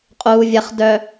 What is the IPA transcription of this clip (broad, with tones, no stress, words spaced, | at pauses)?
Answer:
qʼuː˨vʲɐ˨χ dœ˨